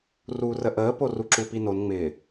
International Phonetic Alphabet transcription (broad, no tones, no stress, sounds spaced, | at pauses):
r uː r ə ʔ əː p o r u ǁ u p i n o n ŋ͡m ɪː